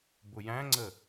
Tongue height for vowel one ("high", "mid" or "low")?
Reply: high